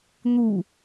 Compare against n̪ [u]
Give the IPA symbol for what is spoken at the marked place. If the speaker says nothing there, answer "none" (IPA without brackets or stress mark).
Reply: u